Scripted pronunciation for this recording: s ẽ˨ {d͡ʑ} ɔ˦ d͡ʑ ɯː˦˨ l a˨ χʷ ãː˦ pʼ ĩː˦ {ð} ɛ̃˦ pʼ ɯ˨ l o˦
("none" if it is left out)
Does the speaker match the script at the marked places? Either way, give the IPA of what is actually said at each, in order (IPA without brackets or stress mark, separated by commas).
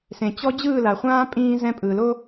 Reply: t͡ɕ, z